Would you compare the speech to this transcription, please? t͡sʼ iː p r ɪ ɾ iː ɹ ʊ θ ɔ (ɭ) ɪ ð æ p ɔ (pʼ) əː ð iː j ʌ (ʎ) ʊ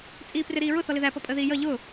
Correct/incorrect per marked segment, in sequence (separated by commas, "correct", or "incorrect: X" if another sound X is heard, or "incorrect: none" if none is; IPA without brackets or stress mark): incorrect: l, correct, correct